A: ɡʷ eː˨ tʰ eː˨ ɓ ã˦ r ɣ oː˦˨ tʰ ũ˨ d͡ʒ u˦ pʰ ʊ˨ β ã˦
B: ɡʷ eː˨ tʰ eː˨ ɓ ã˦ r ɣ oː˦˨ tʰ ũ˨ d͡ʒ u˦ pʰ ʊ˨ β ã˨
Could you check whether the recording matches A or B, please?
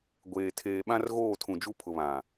B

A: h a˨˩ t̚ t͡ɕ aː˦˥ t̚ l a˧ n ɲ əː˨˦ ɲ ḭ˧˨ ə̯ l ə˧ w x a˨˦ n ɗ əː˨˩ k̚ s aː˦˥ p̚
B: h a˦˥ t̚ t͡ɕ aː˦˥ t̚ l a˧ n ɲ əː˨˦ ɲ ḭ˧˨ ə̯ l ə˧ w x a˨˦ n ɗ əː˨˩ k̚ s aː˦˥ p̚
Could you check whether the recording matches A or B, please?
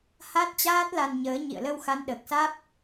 B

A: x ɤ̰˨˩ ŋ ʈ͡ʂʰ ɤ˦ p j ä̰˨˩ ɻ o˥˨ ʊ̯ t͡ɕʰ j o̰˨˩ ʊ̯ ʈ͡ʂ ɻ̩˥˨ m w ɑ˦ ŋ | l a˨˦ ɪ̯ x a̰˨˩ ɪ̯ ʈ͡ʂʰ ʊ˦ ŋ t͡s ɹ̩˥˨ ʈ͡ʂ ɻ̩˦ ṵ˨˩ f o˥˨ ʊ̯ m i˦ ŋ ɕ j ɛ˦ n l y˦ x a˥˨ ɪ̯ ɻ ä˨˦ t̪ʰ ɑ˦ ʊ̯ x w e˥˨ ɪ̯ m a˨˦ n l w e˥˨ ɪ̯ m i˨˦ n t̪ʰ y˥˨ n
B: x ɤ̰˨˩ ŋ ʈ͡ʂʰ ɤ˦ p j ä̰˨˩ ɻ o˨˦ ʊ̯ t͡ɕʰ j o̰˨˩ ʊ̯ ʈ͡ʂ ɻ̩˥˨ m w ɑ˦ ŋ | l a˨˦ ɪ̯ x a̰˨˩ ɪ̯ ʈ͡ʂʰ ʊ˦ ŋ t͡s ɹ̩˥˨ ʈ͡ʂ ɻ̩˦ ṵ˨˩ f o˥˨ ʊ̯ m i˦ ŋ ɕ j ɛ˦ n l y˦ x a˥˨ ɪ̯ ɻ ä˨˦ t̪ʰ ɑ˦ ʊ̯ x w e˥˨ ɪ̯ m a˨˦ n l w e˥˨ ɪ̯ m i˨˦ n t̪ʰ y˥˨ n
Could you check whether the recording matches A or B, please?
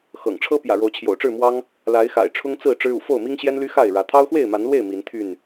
B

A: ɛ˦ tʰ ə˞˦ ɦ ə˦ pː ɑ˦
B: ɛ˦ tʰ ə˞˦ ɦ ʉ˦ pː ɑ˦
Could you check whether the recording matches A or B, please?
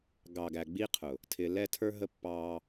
A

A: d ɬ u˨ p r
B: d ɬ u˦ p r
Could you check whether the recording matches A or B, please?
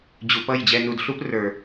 B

